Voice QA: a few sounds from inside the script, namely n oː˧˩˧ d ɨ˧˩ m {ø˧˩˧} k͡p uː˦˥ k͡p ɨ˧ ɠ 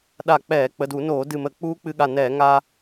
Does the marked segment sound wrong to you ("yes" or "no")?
yes